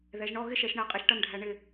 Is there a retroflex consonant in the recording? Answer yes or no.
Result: yes